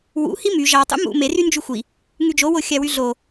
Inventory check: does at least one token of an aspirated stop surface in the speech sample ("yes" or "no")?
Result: no